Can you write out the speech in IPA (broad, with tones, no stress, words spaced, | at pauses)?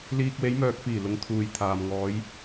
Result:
liː˨k̚we˨˧jmœː˨k̚fiː˨˩ lʊ˨˧ŋt̪ʰuː˨jt̪ʰaː˨m ŋɔː˨˧j